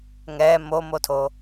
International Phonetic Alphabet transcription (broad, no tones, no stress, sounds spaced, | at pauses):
ŋ ɛ m o m o tʰ o